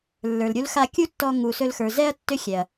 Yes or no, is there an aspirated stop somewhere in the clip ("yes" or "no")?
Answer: no